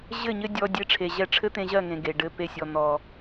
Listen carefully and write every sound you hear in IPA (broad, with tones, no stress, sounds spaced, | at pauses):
ʑ ɘ˦˨ ɲ ɘ˦ dʲ ɔ˧ dʲ e˧ ʈ͡ʂʰ e˨ ʑ ɛ˧ ʈ͡ʂʰ ɘ˦ t̪ ẽ˧ ʑ ɜ˦˨ ŋ ẽ˨ ɡ e˨ ɖ ɘ˦˨ p e˦˨ sʲ ɔ˧ n̪ ɔ˧